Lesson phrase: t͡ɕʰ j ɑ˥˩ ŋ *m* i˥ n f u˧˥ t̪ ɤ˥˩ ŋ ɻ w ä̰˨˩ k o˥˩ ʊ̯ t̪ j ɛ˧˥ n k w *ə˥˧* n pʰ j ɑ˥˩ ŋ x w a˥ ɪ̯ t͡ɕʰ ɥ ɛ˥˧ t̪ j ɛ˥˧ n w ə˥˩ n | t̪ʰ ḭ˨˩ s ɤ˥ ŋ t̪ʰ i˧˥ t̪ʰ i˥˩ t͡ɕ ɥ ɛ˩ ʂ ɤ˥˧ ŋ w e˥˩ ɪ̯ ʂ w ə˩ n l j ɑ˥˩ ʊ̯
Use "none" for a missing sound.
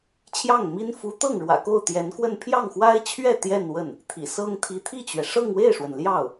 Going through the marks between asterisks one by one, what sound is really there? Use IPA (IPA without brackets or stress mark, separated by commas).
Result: m, ə˥˧